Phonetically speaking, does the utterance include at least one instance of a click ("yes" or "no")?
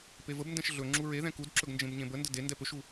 yes